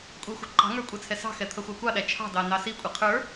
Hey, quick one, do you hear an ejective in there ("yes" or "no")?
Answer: yes